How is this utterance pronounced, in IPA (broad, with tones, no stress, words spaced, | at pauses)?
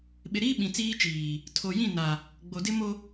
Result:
ɓɪ˨ɾiː˦ ɓĩ˨t͡siː˦t͡ʃiː˨ | tʰo˨ jĩ˦˨ na˨ | ɡ͡bo˨dɪ˦mo˦